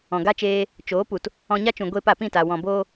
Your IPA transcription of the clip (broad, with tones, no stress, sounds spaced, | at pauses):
ɔ̃˨ ɡ a˦ t͡ʃ eː˧ | t͡ʃ oː˨˦ p u˨ t | ɔ̃˧ ɲ a˦ t͡ʃ ũ˨ ɡʷ eː˧ p a˨ p ĩ˦˨ t a˨ w ɔ̃˨ b oː˧